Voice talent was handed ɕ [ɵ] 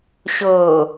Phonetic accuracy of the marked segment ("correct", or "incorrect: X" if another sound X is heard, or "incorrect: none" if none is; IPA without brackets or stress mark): incorrect: ɤ